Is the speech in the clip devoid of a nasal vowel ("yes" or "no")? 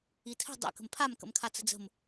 yes